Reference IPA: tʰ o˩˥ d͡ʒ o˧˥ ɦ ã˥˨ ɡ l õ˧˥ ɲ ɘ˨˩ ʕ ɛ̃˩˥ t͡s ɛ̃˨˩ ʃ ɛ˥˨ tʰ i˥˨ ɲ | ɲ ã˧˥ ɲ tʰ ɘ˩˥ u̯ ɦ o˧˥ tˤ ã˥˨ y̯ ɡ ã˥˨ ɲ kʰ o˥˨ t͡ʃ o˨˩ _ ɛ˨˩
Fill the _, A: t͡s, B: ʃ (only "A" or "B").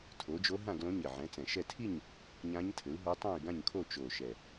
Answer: B